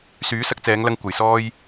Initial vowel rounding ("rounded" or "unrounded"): rounded